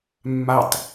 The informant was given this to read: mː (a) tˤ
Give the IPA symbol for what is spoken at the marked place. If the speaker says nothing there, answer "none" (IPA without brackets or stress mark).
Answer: a